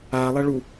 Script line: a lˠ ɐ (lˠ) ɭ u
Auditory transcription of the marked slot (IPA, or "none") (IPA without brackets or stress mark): none